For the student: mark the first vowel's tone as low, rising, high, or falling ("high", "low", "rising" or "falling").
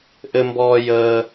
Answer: high